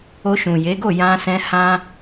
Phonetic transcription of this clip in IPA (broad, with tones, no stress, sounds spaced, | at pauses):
o˧ ʃ ũ˨ j e˨˦ ɡ o˦˨ j ã˧ s ɛ̃˧ h ã˦